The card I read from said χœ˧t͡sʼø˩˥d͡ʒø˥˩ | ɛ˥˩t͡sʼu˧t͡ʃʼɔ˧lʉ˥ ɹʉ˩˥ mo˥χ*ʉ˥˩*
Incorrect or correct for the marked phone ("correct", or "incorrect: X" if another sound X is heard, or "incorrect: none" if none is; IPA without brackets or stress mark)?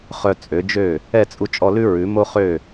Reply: incorrect: ø˥˩